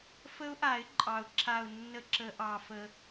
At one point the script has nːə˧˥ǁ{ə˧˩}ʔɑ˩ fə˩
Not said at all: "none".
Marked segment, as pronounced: ə˨˩˦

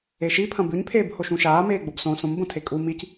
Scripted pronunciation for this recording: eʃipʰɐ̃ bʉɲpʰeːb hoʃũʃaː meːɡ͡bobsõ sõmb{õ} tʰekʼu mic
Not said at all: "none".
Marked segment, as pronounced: õ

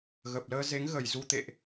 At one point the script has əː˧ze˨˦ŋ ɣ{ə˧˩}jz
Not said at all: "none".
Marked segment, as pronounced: ə˧˩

